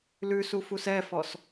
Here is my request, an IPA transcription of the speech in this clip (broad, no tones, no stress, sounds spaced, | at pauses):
l ʉ s u f u s ɛ f ɔ s